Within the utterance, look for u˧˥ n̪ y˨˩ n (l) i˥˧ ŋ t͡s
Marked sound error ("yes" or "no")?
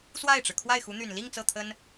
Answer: no